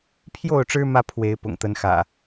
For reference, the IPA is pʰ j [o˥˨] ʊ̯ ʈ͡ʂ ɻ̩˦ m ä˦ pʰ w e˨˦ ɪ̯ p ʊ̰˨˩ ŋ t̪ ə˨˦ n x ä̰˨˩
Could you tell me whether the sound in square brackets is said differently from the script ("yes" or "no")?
no